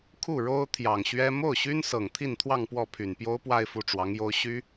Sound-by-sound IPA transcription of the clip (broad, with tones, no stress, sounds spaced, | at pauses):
kʰ u˥˩ ɻ o˥ ʊ̯ t̪ʰ j ɑ˨˩ ŋ ɕ ɥ ɛ˥ m o˥˩ ʊ̯ ɕ y˥ n s ɤ˨˩ ŋ t̪ʰ i˥˧ n t̪ʰ w ɑ˥˧ ŋ p w ɔ˥˩ pʰ y˨˩ n p j o˥ ʊ̯ p w a˥˧ ɪ̯ f u˥˩ ʈ͡ʂ w ɑ˧˥ ŋ j o˥ ʊ̯ ɕ y˥